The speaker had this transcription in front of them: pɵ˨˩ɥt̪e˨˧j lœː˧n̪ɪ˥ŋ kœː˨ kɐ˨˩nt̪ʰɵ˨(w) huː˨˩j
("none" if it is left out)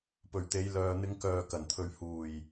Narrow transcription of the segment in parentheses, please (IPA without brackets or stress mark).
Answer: ɥ